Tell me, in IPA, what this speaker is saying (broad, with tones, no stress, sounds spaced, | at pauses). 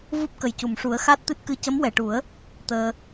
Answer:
v u˦˥ p̚ k ə˨˩ j c u˨˩˨ m ʂ u˨˩˦ ə̯ x a˦˥ t̚ t̪ ɨ˦˥ t̚ k ɨ˧ c ə˧˥ m w ɛ˨˩˨ ʈ u˨˩˦ ə̯ | t̪ əː˧